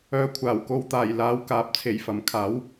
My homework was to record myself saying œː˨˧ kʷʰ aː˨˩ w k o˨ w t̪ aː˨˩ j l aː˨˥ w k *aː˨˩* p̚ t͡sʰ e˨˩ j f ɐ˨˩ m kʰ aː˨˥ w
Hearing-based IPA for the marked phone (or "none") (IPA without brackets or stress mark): aː˨